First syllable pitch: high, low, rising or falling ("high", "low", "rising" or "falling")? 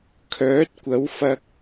rising